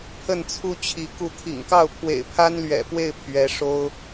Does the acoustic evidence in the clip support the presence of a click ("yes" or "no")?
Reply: no